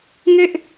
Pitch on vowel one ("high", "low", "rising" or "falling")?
falling